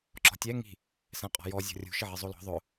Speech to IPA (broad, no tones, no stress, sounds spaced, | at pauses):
ǁ ɔ̤ tʲ ɛ ŋ i̤ | s ɛ̃ qʼ ɔ̤ j ɔ zʲ ɔ̤ rʲ ṳ ʃ ɪ ʕ i zˤ o l ɔ̤ ðˤ ʊ